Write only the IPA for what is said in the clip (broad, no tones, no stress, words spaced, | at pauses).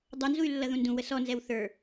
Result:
dˤʌnzuy̯lːʌðũ ndũwə sɔnzɛw θə˞